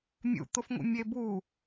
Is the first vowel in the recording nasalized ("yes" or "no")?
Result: no